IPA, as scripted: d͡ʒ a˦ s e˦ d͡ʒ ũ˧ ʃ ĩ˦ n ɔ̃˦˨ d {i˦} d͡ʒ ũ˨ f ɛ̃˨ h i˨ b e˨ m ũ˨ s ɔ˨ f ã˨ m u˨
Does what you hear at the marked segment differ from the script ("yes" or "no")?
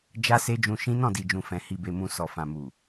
yes